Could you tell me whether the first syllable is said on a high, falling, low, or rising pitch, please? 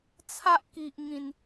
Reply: high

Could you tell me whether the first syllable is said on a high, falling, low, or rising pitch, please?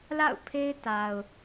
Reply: falling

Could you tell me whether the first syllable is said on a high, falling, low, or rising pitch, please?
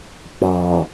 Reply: low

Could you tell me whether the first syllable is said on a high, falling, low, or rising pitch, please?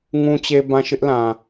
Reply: low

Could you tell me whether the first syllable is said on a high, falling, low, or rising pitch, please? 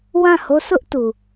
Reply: falling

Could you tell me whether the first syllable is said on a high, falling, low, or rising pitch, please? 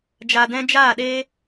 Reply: low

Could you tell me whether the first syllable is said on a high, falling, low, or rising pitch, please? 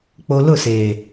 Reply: low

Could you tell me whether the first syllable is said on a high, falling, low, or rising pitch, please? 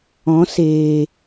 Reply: rising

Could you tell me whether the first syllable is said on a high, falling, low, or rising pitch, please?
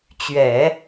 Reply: low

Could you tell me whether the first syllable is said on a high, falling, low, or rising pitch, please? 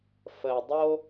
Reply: low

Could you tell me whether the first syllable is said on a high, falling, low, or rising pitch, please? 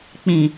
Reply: low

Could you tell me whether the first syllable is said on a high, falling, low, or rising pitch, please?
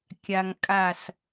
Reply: low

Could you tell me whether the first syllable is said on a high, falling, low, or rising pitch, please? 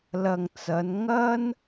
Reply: low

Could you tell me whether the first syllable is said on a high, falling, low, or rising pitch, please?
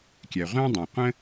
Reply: low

